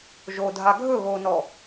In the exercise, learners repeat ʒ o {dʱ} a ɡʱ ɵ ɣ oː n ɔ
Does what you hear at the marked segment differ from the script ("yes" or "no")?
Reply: no